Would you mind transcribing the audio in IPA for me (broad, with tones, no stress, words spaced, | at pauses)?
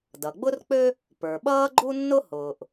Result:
dʌ˩ɡ͡bʊ˥rk͡pø˥ | pə˞˩ɓʌː˥ɡ͡ǃu˥nːʊ˥ hʊː˩ʔ